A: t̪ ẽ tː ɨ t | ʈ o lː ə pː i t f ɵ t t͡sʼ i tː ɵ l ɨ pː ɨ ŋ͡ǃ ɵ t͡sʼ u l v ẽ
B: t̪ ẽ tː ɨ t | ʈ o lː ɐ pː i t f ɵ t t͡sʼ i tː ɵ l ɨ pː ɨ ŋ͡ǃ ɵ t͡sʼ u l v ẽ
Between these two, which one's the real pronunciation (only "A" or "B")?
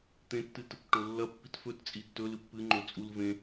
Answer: B